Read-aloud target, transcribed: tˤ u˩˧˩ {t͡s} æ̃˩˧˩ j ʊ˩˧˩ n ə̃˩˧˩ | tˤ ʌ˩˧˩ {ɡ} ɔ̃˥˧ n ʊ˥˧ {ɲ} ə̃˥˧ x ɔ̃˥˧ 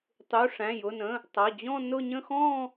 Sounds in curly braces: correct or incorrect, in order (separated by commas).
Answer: incorrect, incorrect, correct